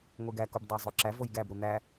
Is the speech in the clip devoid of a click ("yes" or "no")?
no